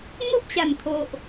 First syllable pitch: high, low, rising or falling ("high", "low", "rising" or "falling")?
high